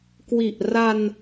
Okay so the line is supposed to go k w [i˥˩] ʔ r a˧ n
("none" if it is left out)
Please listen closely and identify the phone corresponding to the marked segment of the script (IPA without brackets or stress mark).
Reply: i˨˩